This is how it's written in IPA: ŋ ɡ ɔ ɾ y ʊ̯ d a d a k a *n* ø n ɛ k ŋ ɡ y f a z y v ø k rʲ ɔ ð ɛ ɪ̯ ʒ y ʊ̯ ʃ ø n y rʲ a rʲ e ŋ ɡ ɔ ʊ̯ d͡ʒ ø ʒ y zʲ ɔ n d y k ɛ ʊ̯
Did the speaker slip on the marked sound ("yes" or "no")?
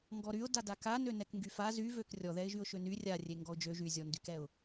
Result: no